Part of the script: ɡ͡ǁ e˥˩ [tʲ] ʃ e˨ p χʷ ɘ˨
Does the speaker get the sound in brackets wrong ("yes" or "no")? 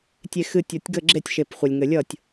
no